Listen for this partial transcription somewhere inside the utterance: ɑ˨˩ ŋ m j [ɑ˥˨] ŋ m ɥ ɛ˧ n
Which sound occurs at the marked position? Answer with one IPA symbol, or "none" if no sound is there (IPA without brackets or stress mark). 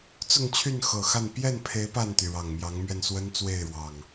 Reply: ɑ˨˦